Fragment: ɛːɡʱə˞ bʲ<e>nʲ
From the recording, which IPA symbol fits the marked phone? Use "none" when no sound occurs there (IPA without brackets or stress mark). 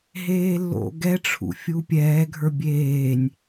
eː